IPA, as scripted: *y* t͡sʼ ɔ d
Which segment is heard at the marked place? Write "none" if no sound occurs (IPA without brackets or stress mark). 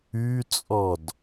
y